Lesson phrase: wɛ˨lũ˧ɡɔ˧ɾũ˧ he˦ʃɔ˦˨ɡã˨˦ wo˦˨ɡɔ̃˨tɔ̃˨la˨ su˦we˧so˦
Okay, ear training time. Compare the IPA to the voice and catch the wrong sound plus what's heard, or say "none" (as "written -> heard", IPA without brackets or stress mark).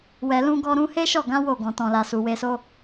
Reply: u˦ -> u˨